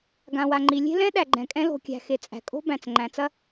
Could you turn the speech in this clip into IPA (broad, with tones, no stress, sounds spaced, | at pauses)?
ɡ ã˩ w a˩ ŋ͡ǃ i˩ lʲ e̤˥ l ɛ̃˥ ɗ æ˩ ɡ͡ǃ ɛ̃˩ kʼ ɛ̃˥ l o̤˩ kʲ æ̤˩ x e˩ t͡sʼ æ̤˩ kʼ o̤˥ b æ̃˩ t͡s ŋ͡ǃ æ̃˩ t͡s ɐ˥